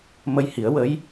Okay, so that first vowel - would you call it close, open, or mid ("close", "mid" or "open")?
mid